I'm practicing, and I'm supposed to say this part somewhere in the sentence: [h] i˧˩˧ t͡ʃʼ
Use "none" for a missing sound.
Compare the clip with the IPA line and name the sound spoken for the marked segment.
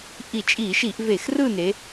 ʔ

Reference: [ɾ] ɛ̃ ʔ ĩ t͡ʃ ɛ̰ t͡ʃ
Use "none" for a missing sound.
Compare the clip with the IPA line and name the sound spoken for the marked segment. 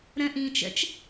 ɾ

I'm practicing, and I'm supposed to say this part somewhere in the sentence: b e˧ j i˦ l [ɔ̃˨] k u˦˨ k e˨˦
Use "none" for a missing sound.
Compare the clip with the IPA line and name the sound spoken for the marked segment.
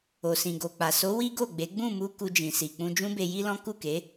ɔ̃˦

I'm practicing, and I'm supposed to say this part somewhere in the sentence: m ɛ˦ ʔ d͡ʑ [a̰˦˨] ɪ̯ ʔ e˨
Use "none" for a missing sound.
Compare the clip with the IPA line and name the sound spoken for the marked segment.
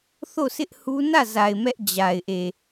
a˨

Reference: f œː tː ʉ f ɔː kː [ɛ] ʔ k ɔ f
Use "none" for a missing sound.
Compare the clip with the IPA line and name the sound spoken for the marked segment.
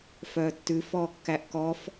æ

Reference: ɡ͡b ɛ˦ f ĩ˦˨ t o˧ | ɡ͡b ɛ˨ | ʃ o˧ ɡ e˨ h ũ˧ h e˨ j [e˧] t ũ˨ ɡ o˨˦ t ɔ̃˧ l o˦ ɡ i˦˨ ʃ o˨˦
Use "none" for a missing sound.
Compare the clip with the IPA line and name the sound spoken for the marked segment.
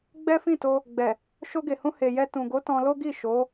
ɛ˧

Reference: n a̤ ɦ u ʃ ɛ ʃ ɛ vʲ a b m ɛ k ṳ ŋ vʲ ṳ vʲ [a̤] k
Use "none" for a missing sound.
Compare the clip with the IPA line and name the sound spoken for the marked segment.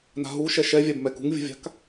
a̤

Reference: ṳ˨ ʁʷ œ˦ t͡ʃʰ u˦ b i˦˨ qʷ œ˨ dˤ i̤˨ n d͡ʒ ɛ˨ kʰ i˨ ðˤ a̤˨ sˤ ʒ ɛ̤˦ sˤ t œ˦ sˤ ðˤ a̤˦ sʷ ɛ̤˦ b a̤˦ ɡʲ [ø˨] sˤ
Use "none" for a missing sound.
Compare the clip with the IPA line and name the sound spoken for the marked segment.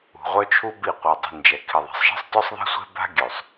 ø˨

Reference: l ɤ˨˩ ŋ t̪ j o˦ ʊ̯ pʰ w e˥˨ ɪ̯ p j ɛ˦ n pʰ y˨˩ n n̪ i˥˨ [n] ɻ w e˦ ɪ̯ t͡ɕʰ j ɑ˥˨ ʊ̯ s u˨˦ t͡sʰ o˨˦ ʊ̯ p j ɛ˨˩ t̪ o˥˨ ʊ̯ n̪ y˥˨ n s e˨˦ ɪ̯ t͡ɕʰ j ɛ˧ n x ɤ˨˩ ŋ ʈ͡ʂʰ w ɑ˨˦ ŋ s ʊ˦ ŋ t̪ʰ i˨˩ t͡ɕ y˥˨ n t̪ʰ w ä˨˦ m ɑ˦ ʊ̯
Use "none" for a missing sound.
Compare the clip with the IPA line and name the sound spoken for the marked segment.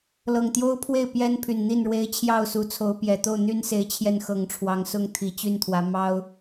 n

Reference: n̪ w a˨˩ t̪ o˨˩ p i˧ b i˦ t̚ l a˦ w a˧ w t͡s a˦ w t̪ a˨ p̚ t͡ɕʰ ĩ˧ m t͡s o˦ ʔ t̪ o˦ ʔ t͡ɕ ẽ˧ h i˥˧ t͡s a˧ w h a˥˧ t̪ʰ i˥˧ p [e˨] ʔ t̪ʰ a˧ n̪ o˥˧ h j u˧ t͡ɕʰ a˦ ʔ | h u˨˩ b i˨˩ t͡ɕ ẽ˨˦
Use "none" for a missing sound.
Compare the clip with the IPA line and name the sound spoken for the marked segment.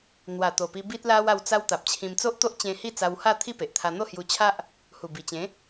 e˨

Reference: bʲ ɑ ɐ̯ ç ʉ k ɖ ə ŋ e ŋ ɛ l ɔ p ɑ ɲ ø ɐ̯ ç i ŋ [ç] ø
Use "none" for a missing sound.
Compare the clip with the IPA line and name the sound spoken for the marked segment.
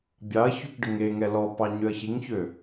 ç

